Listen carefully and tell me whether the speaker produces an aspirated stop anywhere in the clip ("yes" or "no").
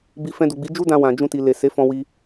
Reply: no